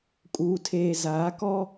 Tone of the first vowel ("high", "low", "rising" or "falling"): low